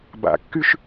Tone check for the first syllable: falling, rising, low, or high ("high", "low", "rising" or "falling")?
low